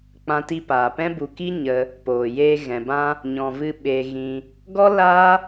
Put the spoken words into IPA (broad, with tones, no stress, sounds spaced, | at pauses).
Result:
k͡p ã˧ t i˧ p aː˨ p ɛ̃˦ b u˨ k i˦ ɲ ə˧ | p oː˨ j eː˧ ɣ ɛ̃˨ b ã˦ | ɲ ɔ̃˨ v ɨ˧ ɓ eː˧ ɣ ĩ˧ | ɡ ɔ˦ l a˦